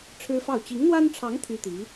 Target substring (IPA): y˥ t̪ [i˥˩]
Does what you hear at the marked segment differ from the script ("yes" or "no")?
yes